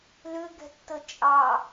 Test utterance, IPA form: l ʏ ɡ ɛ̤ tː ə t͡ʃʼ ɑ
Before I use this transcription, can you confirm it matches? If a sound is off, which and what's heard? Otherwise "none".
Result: none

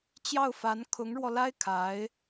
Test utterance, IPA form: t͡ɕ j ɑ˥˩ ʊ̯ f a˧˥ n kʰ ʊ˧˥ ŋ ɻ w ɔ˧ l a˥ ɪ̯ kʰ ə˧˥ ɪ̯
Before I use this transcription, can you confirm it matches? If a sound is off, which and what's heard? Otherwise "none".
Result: ə˧˥ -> a˧˥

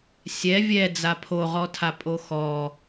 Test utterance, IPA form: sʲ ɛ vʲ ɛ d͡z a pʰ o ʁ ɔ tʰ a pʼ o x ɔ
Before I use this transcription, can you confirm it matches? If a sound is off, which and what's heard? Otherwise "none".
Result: none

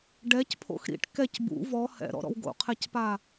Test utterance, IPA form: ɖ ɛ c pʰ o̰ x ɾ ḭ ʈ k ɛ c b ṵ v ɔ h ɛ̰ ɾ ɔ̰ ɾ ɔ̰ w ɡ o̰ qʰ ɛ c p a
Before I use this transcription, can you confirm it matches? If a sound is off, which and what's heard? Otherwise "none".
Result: none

